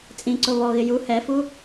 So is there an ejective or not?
yes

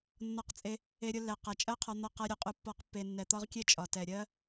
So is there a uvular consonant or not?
yes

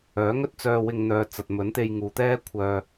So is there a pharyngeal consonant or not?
no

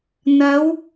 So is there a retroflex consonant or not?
no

